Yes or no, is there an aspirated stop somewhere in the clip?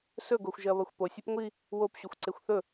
no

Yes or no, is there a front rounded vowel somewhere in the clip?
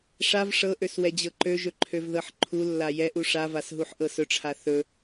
yes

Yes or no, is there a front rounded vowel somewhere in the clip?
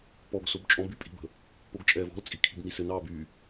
yes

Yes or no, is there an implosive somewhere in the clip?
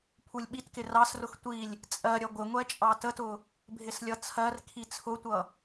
yes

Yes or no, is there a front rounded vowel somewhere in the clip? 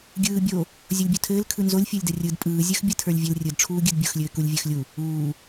no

